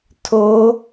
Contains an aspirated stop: yes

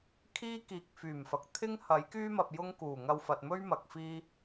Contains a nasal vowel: no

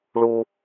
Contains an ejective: no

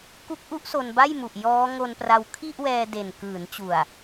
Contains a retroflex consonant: no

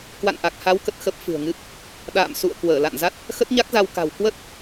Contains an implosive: yes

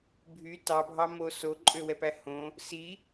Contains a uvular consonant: no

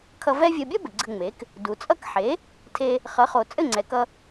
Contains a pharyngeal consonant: yes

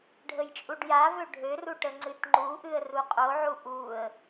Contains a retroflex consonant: yes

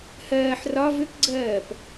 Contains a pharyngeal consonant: yes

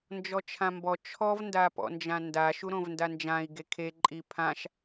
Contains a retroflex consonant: no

